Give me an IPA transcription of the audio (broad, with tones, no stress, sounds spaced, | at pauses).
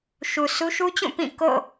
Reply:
ʃ u˨ s u˦ ʃ u˦ t͡ɕ ũ˦˨ p ĩ˦˨ k o̰˦˨